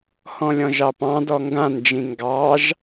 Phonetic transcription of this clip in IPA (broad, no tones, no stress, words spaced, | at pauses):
hɔ̃lʲɔ̃ʒɑpɑ̃ dɔŋɡãnd͡ʒĩ ŋɡɑʒ